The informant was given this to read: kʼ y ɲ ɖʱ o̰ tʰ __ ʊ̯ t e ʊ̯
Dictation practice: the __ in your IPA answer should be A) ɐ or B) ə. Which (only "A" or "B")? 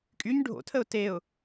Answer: B